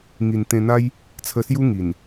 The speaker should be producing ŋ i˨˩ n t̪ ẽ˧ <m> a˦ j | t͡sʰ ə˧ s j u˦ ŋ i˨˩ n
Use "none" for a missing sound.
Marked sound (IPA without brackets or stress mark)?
n̪